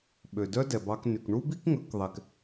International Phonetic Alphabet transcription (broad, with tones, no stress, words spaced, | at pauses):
ɓø˨dœ˦ dɛ˨bɑ˧kny˨k ɳu˦bi˦kŋɵ˨˦k ðˤɛ˧k